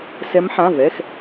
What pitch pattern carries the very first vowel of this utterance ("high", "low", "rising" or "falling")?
rising